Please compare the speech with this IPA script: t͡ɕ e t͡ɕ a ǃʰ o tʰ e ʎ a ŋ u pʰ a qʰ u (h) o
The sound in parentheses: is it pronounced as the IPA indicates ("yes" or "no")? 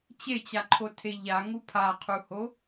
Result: yes